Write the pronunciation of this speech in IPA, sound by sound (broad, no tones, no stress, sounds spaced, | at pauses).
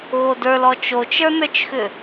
ɣ o d ə˞ l ɔ t͡ʃ o t͡ʃ ə˞ n ə˞ t͡ʃ x ʏ